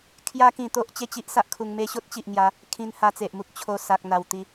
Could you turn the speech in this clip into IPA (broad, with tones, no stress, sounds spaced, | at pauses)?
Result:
kʰ j a˦ k ĩ˧ t̪ o˦ ʔ t͡ɕ e˥˧ t͡ɕ i˦ ʔ s a˦ ʔ kʰ u˧ ŋ m e˦ ɕ o˦ t̚ t͡ɕ i˨ ʔ ŋ j a˨˦ | kʰ ĩ˧ n h a˧ t͡s e˨ ʔ m u˦ k̚ t͡ɕʰ o˧ s a˨ k̚ n̪ a˨˩ w t̪ i˨˦